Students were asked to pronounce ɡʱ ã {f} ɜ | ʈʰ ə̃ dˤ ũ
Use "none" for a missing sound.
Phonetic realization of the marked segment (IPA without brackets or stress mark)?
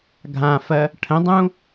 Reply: f